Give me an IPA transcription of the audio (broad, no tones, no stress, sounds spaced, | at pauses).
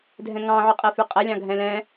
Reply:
dʱ ɛ̃ ŋ ɑ̃ ʕ y qʼ e f y qʼ ɛ lʲ ɑ̃ ɡʱ ɛ̃ l ɛ̃